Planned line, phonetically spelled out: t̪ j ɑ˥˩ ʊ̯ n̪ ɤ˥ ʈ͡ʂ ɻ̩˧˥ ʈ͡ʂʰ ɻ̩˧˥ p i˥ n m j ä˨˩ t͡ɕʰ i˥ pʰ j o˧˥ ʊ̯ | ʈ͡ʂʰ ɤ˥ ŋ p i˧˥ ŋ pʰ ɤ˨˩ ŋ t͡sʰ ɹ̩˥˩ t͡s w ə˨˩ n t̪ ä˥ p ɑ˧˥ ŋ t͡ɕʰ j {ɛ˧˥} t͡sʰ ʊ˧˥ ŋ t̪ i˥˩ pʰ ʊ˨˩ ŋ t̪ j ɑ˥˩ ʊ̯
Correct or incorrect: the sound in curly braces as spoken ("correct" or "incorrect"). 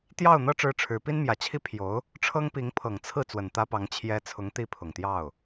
incorrect